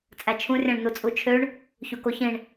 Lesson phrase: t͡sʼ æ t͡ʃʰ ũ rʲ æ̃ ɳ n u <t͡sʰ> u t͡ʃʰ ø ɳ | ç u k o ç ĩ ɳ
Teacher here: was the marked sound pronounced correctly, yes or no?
no